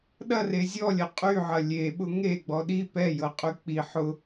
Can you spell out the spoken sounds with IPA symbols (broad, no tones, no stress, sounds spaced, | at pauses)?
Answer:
ɗ ɐ r e zʲ ɔ lʲ ɐ qʼ y ʕ ɐ lʲ e ɓ ʊ ŋ e ɡ͡b ɔ ɗ i p ɛ j ɤ qʼ y k͡p i ħ ʊ